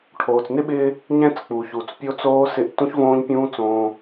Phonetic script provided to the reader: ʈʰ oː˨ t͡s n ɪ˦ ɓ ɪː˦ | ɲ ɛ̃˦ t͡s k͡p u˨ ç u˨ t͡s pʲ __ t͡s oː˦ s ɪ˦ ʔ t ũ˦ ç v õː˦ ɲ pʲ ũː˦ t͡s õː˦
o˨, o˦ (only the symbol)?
o˦